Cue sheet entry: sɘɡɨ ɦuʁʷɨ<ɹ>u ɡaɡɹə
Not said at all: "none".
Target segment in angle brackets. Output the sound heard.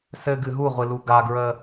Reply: l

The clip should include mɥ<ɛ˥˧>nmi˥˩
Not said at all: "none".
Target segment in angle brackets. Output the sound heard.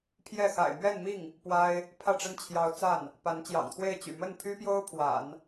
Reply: ɛ˥˧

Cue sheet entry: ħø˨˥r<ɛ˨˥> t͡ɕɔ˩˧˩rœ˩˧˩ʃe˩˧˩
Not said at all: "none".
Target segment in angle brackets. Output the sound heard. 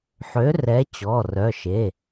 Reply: ɛ˨˥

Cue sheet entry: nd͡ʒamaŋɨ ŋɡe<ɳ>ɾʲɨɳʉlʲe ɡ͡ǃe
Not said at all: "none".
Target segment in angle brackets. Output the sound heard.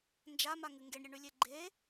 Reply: ɳ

